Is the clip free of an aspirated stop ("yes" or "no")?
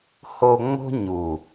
yes